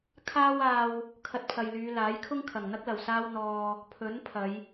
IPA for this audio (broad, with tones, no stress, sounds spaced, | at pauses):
kʰ aː˥ w aː˥ w | kʰ ɐ˧ t̚ pʰ ɐ˨ j l yː˨˧ l aː˨˥ j kʰ ʊ˥ ŋ kʰ ɐ˨˩ ŋ n̪ ɐ˥ k̚ l ɐ˨˩ w s aː˧ w n̪ ɔː˨ | pʰ ɵ˨˥ n pʰ ɐ˨˧ j